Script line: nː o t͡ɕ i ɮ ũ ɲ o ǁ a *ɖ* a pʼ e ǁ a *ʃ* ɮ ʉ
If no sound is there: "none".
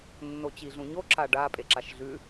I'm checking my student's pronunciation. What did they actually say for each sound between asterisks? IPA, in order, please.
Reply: ɖ, ʃ

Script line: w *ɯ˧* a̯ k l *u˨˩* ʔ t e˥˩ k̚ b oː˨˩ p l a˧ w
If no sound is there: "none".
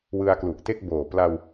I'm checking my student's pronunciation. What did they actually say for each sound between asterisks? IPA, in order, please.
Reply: ɯ˧, u˨˩

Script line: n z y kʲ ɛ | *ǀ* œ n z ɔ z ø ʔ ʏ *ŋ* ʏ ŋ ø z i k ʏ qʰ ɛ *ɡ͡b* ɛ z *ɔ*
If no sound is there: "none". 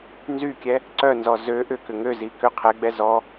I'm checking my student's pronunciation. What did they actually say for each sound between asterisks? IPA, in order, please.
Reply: ǀ, k, ɡ͡b, ɔ

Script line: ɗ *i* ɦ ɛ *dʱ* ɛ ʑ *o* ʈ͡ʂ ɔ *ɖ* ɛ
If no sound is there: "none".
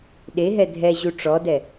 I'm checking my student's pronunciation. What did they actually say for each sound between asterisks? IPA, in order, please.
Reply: e, dʱ, u, d

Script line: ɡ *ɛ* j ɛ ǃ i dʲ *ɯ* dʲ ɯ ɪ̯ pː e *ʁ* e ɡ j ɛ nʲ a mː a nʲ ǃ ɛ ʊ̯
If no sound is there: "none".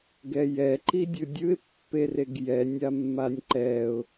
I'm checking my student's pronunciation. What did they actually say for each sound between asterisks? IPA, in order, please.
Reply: ɛ, ɯ, r

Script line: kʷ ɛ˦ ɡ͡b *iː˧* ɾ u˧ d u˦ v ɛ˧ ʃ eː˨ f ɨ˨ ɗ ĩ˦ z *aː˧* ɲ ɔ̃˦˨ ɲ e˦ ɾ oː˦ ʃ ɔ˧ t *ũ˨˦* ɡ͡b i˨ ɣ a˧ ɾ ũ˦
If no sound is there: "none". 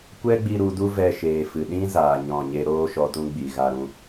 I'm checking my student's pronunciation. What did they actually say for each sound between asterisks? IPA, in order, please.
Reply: i˧, aː˧, ũ˦

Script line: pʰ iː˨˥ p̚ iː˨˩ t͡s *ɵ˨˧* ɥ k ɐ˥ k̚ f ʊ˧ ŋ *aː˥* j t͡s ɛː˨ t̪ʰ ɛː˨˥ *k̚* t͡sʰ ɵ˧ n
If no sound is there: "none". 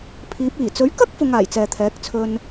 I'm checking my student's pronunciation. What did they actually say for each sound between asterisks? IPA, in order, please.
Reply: ɵ˨˥, aː˨˩, k̚

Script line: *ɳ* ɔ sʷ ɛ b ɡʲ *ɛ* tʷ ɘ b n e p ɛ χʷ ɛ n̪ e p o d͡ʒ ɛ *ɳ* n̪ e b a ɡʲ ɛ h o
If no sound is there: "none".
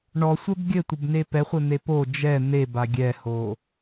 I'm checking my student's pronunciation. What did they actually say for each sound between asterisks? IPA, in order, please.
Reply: ɳ, ɘ, none

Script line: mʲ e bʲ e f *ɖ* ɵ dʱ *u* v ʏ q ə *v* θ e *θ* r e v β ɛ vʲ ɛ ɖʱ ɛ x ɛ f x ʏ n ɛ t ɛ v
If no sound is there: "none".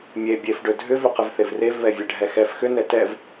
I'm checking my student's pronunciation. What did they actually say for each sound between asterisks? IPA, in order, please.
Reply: ɖ, ʏ, v, v

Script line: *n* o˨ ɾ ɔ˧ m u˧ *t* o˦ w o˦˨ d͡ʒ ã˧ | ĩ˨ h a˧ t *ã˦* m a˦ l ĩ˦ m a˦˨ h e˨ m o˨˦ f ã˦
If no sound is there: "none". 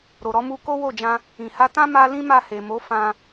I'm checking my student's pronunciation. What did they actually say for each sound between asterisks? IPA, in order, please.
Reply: ɾ, k, ã˦

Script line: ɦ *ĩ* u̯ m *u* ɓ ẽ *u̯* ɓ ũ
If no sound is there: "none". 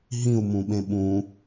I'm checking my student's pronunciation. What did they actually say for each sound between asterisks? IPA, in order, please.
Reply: ĩ, ũ, none

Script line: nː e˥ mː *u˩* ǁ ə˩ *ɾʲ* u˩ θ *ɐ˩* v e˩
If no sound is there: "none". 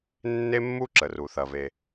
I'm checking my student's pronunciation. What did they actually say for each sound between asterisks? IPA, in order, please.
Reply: u˥, r, ɐ˩

